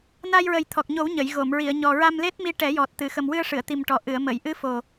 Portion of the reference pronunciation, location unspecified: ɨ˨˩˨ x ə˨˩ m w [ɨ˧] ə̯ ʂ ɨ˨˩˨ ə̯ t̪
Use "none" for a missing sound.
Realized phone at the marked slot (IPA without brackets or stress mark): ɨ˧